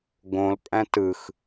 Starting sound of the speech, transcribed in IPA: ɡ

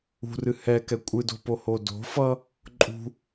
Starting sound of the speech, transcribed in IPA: ṳ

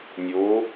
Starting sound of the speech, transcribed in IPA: nʲ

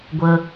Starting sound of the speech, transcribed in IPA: ɡʷ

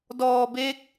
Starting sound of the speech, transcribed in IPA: d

